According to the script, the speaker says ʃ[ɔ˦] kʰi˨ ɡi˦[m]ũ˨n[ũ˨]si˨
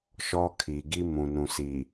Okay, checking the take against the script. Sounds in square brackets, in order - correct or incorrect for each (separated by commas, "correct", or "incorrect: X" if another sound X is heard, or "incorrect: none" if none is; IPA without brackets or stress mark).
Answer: correct, correct, correct